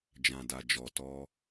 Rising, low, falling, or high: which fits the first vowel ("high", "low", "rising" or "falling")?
low